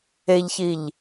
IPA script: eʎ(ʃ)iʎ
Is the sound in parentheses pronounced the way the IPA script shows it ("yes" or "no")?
no